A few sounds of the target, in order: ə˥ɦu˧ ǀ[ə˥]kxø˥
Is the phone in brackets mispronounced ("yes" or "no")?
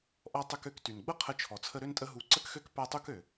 no